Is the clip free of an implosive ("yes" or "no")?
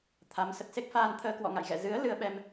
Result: no